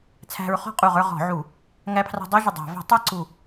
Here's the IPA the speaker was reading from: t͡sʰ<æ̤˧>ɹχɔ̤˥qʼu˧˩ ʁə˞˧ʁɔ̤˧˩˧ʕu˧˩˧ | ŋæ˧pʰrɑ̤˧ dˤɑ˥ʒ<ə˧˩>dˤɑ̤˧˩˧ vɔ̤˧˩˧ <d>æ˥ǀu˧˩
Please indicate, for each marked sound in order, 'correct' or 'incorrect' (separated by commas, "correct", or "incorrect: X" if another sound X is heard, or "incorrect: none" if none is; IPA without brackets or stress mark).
correct, correct, incorrect: tˤ